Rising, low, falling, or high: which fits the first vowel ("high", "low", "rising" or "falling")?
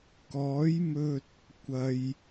rising